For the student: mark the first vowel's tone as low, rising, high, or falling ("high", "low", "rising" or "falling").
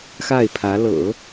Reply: falling